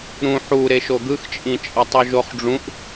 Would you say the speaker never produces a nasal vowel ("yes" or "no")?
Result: no